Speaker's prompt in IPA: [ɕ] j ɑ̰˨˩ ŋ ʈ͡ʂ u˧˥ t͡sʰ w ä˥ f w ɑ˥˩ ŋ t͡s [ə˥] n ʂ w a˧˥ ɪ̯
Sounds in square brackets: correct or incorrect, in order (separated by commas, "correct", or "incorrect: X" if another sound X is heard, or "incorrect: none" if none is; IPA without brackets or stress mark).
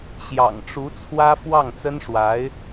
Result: correct, correct